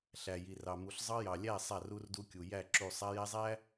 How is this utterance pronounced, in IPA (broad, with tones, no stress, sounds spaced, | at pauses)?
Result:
ɬ æ˨ j i˨ r ɑ˨ m u˨ ɬ zˤ ɑ˦ j ɑ˨ lʲ æ˦˨ sˤ a˦˨ r u˦ r d u˦ kʲ u˨ j æ˦˨ ǁ u˦˨ sˤ a˦ j æ˦ zˤ æ˦